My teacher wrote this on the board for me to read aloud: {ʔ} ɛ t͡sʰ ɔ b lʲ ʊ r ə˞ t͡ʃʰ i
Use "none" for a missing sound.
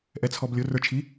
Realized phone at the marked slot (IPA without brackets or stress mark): ʔ